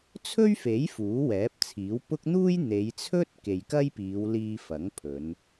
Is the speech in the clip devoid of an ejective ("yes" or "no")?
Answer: yes